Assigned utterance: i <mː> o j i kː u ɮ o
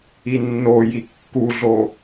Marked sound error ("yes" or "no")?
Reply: yes